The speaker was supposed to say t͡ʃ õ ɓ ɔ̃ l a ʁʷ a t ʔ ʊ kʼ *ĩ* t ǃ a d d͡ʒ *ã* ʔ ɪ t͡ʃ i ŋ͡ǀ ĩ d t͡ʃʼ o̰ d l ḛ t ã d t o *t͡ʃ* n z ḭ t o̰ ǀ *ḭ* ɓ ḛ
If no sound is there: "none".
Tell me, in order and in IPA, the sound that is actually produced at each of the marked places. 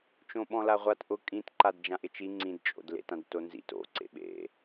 ĩ, ã, none, ḛ

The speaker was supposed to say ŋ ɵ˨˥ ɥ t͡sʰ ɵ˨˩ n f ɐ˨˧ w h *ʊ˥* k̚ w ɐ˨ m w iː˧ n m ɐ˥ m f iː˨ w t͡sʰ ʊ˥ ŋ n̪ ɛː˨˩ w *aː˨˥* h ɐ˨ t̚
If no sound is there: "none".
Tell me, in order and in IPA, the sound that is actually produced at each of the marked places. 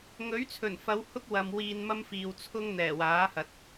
ʊ˥, aː˨˥

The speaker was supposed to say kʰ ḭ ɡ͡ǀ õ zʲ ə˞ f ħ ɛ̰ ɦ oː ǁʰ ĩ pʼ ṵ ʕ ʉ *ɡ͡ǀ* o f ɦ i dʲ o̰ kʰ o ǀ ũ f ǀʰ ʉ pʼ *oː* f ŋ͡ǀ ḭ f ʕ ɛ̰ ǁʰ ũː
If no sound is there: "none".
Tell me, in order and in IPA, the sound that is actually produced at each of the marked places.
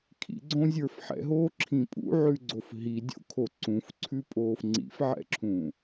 ɡ͡ǀ, oː

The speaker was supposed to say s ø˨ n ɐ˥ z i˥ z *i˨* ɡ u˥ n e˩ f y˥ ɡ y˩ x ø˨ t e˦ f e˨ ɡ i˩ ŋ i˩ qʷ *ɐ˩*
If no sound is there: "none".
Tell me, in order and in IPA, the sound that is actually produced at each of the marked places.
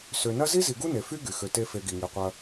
i˨, ɐ˨

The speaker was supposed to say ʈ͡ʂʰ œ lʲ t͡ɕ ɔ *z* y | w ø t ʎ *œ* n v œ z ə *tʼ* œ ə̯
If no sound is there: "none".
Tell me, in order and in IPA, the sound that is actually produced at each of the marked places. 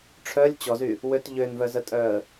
z, ø, tʼ

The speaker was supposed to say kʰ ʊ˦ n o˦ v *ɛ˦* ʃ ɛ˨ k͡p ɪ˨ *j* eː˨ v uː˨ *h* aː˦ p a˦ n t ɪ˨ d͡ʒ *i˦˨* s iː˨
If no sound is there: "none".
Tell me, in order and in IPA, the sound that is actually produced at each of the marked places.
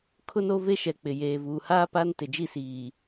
e˦, j, h, i˦˨

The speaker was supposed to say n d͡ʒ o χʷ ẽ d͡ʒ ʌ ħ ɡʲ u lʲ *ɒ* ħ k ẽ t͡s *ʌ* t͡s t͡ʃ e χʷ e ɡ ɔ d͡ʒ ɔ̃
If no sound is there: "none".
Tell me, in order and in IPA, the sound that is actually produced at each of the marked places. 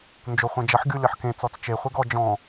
ʌ, ɔ

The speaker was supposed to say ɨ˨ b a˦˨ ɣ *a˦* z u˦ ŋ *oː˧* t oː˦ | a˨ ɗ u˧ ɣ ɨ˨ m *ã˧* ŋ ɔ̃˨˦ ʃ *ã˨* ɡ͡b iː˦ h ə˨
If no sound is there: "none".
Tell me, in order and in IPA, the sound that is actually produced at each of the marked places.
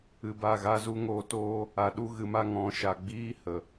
a˦, oː˧, a˧, a˨

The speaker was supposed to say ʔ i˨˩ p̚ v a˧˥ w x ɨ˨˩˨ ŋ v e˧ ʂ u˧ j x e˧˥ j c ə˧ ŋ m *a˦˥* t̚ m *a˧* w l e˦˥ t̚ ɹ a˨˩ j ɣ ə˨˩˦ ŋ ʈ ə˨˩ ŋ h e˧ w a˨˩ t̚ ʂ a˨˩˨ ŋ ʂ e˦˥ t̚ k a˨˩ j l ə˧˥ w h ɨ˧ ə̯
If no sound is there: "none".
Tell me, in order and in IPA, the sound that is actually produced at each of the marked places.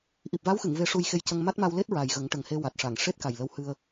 a˦˥, a˧

